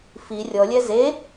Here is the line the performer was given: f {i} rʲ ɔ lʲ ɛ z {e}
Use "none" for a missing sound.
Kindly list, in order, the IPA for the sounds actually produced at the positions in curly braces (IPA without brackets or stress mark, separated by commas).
i, e